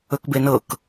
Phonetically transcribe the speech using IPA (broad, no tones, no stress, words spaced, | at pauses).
ɵkbenɤk